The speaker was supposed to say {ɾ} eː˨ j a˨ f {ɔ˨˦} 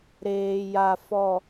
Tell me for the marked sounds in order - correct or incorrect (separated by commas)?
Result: correct, incorrect